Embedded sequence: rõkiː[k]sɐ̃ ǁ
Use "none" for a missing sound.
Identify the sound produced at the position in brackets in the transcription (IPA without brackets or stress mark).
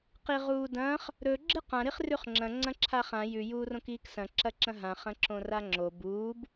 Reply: k